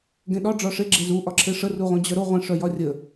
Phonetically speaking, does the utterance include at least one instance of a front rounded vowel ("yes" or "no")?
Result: yes